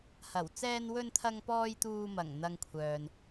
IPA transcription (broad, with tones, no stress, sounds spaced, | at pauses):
h ɐ˨˩ w t͡s ɛː˧ n w ɵ˧ n t̪ʰ ɐ˧ ŋ p ɔː˧ j t̪ uː˧ m ɐ˨˩ ŋ n̪ ɐ˨ ŋ kʷʰ œː˨ n